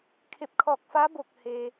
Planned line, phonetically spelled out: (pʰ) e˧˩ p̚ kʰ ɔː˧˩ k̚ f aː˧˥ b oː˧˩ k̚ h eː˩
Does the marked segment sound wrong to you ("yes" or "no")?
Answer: yes